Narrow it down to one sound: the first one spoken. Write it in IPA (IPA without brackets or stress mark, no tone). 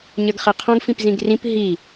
ɲ